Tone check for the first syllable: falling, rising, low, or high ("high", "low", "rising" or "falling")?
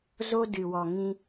high